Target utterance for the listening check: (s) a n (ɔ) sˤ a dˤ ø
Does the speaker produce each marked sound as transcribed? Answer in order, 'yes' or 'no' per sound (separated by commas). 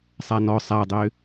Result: no, yes